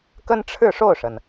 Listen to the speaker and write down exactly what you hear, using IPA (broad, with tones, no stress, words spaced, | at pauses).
kə˥nʈ͡ʂʰɻ̩˥˧ʂo˥˩ʊ̯ʂə˩n